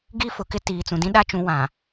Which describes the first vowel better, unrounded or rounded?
unrounded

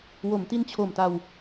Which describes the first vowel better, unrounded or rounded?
rounded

